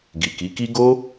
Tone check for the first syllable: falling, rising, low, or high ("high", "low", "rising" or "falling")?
low